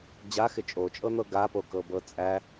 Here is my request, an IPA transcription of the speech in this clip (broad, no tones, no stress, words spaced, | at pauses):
d͡ʑaxɪ t͡ʃʼot͡ʃʼɤn̪ɤ ɡapokɤbɤ t͡sʼæ